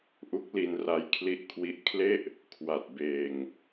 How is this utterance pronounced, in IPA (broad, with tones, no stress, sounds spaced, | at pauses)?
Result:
ʔ u˦˥ k̚ l i˧ n r a˧ j kʰ l i˦˥ ʔ kʰ w i˦˥ ʔ kʰ l e˥˩ ʔ | kʰ w a˨˩ t̚ b eː˧ ŋ